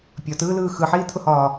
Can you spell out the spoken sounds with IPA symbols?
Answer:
pʲɒtɯːlɯː xɯħiːt̪ʰʊhɒː

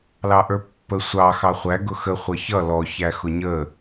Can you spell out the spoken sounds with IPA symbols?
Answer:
lɑʔə˞pːə sʷɑ xɑχʷæ ɡʊxə χʷʌçʌ lɔ çæxʊɲə

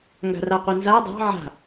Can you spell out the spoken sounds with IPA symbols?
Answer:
ŋɡa̤raqʷɛnza dˤɑ̤ ʕa̤

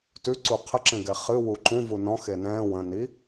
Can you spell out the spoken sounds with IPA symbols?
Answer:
tʉǀu qʰəǁẽɡɛ χɨ wuǃũ vunɔ̃xe nɛ̃ː wə̃ni

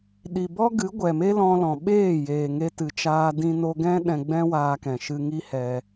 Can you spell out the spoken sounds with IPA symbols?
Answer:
ɗi˨bɔ˦ɡɨ˨˦ ɡʷɛ˨me˦lɔ̃˧lɔ̃˨ ɓeː˦˨ jeː˨ŋe˧tɨ˨t͡ʃaː˧ dĩ˧no˧ɡɛ̃˦ ɗɛ̃˧ɡ͡bɛ̃˦waː˧kɛ̃˨ ʃɨ˧ŋi˦ hɛ˧

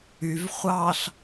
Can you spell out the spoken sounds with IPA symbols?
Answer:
yv χʷɑɬ

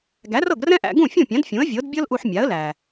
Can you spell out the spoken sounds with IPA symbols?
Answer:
ɡæ˩˥rɤ˥˩ɡrɛ̃˥ʔæ̰˧ ɡũ˥˩fʲũ˥˩pʲã˩˥d fʲũ˩˥ə̯vʲɤ˩˥dbʲɤ˥lʔu˧ħ mʲa˩˥ə̯læ˩

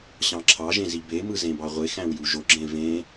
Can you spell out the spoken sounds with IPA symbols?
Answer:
ɕɑ̃ǁʰɑʒẽz ibemɯ zẽbɑʁʷexæ̃w juʒoɡ͡ǁẽ vẽ

